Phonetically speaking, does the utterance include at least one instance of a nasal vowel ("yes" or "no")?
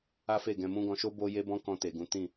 yes